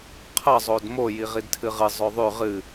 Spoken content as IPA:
qʰ ɐ zˤ o d m o j i ʁ i d tʰ ɨ ʁ ɨ zˤ ɵ ðˤ ʉ ʁ ɨ

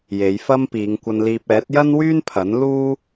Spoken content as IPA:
j e˨˧ j f ɐ˥ m p iː˨˧ ŋ kʷ ɐ˧ n l iː˧ p̚ ɛː˨˥ t̚ j ɐ˥ n w yː˥ n pʰ ɐ˨˥ n l uː˥

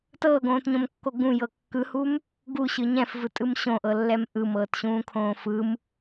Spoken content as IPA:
t ɤː ɡ õː t ɲ õ m kː o ɡ ũ j ɤ kː ɯ h u m | ɡ u ɕ ɯ ɲ ɛ̃ f v ɯ tʼ ɯ m ɕ õ ʔ ɤ lː ɛ m ʔ ɯ m ɤː t ɕ ũː kʰ õː f ɯ m

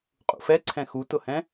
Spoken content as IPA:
qʼ ṵ f ɛ ǀʰ ɛ̃ x u t ʊ h ɛ̃

